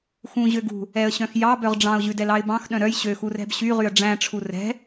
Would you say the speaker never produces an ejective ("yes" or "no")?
yes